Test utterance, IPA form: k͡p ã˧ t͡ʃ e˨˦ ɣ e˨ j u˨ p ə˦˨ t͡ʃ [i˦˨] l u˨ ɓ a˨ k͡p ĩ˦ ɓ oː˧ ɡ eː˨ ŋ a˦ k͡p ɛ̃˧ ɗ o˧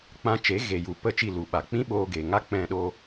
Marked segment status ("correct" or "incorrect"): correct